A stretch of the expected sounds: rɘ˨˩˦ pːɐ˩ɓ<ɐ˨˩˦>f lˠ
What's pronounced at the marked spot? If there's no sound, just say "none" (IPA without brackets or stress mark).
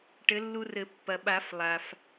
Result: a˨˩˦